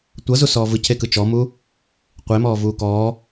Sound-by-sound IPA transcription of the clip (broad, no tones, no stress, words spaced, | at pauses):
tʷɤzusɔː vɯcʰekɯ t͡ʃɔmu | qʷemɔːvuː kɔː